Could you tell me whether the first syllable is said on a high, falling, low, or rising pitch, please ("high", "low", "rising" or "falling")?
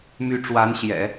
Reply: rising